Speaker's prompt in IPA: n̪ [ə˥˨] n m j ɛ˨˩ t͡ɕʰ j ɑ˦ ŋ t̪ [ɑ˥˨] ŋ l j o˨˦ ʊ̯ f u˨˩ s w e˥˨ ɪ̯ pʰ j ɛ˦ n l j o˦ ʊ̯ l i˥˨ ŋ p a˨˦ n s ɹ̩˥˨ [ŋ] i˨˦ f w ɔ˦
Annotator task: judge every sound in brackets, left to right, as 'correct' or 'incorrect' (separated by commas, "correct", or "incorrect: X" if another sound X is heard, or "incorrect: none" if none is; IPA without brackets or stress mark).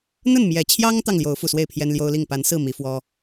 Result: correct, correct, incorrect: m